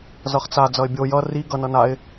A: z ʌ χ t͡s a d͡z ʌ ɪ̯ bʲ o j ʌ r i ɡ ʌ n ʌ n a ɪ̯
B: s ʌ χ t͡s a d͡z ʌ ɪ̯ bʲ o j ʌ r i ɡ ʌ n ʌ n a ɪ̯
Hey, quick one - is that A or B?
A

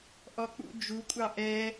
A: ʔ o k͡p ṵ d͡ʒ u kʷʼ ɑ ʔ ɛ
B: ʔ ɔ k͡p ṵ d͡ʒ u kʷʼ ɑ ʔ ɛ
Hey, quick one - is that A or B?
B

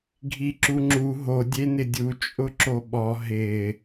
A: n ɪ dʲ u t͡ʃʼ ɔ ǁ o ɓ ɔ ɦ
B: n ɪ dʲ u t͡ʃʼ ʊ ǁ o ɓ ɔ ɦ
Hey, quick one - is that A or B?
B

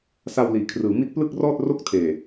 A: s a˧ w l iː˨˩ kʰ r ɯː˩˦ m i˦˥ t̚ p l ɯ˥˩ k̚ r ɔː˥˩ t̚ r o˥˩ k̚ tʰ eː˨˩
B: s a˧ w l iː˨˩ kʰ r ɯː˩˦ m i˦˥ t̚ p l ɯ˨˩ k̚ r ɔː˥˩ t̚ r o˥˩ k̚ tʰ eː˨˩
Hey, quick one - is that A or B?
A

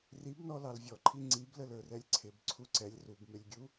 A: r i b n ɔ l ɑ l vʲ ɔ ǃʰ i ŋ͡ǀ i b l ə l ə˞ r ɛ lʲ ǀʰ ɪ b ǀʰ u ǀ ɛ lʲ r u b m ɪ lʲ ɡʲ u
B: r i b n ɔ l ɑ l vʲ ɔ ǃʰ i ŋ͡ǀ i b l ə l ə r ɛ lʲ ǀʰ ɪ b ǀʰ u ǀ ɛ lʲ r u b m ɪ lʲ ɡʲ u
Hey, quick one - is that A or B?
A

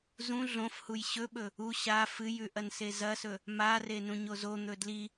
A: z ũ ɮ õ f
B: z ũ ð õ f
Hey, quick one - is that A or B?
A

